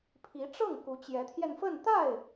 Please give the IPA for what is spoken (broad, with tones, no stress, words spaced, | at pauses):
pʰi˧˥ʈ͡ʂɤ˥˩ŋ ku˧˥t͡ɕjɛ˧˥t̪ʰjɛ˧nfə˥˧n t̪a˥˩ɪ̯